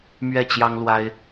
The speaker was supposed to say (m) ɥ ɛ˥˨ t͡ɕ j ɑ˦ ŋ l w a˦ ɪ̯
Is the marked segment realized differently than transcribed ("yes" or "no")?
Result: no